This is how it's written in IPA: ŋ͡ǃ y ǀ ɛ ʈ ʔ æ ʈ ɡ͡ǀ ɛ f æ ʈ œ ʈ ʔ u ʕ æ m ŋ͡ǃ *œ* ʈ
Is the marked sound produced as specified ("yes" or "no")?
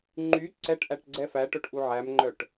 yes